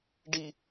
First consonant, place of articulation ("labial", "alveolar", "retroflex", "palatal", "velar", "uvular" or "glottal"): retroflex